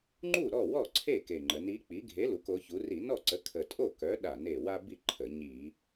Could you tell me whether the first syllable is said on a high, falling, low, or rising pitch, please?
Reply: falling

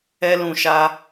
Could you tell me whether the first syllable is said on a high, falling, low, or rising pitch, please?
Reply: high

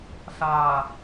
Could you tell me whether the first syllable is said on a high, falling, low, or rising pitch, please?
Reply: low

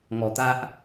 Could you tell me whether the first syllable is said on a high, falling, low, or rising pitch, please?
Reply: low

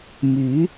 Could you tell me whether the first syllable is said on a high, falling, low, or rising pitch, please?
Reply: rising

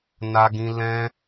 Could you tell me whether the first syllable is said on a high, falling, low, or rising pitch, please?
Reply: high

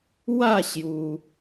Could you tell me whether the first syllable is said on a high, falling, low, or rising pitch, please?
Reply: falling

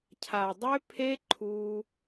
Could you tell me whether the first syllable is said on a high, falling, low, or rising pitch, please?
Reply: low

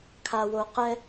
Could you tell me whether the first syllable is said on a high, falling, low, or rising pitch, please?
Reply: low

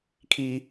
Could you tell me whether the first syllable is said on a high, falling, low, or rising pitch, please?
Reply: high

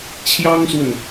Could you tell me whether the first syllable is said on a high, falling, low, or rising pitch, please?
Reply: high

